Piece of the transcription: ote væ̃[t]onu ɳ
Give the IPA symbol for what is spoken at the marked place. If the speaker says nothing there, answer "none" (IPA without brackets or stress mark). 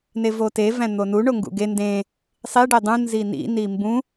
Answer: n̪